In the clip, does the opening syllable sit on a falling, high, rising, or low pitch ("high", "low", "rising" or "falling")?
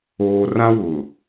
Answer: low